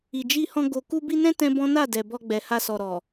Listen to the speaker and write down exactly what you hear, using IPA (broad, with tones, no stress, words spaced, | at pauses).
i˨d͡ʒi˧hɔ̃˧ ɡo˨ ku˧bi˧nɛ̃˦ tɛ̃˦bɔ̃˦ na˦˨dɛ˨ bɔ˧ɡ͡bɛ˨ha˧ sɔ˨ɾɔ˨